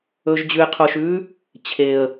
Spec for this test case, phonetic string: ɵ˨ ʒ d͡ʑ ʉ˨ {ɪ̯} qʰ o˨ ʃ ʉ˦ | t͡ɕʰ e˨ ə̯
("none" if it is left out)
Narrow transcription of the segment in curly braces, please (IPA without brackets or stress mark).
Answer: ɪ̯